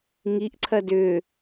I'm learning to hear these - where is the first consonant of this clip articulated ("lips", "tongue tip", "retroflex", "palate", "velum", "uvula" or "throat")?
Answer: velum